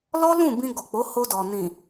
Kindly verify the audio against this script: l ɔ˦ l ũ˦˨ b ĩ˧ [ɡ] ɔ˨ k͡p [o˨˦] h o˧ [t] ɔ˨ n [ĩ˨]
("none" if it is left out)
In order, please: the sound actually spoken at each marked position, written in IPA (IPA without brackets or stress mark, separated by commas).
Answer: ɡ, o˨˦, d, ĩ˨